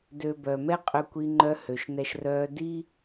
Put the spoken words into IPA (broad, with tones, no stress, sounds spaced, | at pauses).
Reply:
d ø˧ b œ˩ m ɛ˥ qʼ ø˧ kʷ i˧ ŋ͡ǃ œ˧˥ h ø˩ ʃ n ɛ˧ ʃ r œː˧ d i˥